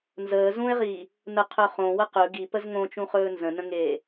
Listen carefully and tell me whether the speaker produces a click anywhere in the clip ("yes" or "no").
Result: no